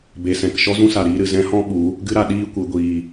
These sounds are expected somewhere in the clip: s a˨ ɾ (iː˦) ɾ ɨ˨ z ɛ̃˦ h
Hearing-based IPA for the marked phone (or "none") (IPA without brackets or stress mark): iː˦